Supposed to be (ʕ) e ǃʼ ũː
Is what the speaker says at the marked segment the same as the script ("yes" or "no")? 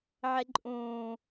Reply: yes